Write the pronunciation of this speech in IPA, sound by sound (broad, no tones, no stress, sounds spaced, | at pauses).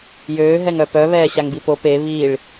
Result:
j øː ɦ ɛ ŋ œ p œ β ɛː ɕ a ŋ b i p o p e β i ɭ